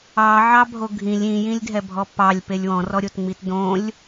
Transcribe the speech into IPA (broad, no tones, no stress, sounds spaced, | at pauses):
ɑ ʕ ɑ bʱ o ɡʱ ĩ lʲ ĩ j ĩ lʲ dʱ ɛ bʱ ɔ p ɑ lʲ p e lʲ w ɔ̃ r ɔ ɾʲ o t ŋ͡m i t d õ lʲ